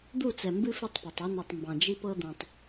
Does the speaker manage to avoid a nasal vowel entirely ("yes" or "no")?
no